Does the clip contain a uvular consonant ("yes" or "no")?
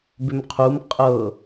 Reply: yes